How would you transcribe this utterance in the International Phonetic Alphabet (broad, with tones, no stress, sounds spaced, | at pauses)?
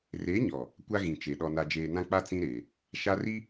r e˨˦ ɲ ɔ˨ | kʷ a˦ ɣ ĩ˨ t͡ʃ e˨ ɗ ɔ˨ n a˨ d͡ʒ eː˨ n ã˦ k͡p a˦ t͡s ĩ˦ ɾ eː˨ | ʃ a˦ r i˦